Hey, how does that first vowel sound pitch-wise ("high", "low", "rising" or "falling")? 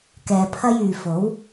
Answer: low